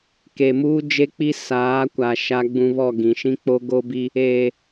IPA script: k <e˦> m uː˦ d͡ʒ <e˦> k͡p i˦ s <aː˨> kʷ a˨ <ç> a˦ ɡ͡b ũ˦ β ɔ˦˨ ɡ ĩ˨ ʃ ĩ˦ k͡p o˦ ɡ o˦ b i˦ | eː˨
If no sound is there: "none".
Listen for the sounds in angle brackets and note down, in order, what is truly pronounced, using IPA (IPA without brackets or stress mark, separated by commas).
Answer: e˨, e˦, aː˨˦, ʃ